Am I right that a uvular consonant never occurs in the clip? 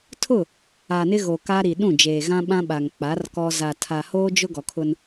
yes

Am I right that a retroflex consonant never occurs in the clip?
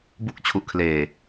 yes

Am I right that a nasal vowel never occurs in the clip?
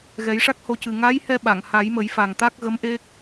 yes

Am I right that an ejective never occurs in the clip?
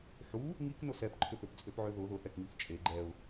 no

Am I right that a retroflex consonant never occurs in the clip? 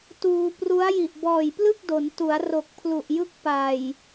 yes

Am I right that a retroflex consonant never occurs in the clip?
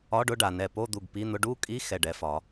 no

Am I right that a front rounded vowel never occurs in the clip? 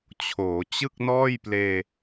yes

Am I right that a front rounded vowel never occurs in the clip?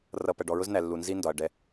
yes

